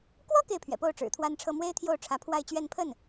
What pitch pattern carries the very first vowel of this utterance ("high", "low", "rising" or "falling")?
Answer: high